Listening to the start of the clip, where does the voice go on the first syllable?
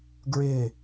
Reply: falling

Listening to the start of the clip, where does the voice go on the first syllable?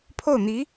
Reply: falling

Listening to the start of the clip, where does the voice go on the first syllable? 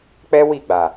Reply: high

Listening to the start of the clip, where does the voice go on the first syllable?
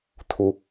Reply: rising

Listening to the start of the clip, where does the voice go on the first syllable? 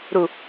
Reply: low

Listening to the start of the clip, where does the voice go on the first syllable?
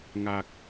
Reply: high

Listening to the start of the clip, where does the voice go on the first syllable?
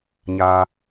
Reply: low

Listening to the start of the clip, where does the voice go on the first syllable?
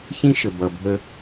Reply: high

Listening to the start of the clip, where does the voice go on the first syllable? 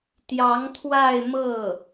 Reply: rising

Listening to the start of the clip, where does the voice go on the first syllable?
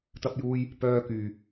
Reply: high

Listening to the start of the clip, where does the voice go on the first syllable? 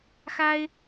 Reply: high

